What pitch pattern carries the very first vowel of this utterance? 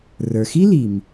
low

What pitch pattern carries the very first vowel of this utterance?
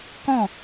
falling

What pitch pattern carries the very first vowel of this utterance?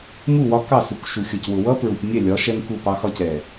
falling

